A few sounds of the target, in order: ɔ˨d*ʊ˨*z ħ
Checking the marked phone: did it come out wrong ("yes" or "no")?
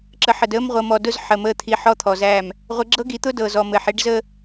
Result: yes